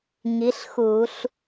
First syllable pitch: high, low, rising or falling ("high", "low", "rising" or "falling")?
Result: rising